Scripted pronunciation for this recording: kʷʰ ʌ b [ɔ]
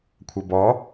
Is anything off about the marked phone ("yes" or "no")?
no